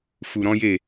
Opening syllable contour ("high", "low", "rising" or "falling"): low